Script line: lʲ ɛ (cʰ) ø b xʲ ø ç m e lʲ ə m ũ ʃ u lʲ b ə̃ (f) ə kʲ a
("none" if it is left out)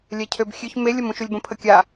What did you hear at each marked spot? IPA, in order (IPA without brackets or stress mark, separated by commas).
cʰ, pʰ